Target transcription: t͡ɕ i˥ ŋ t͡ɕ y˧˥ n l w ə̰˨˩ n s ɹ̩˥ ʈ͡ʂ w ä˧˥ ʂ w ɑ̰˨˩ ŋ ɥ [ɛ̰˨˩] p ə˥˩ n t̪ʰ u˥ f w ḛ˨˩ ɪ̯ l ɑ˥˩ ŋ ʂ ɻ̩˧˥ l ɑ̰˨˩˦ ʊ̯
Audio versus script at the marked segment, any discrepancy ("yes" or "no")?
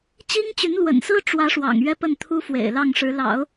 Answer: yes